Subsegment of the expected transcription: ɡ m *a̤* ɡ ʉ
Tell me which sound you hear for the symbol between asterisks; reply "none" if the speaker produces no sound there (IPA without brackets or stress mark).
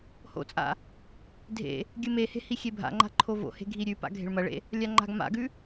a̰